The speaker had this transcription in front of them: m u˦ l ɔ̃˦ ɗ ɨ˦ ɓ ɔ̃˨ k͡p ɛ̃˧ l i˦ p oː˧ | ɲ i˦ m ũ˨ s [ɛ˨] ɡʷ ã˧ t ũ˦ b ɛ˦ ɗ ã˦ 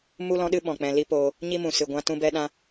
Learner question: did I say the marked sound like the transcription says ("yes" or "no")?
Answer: no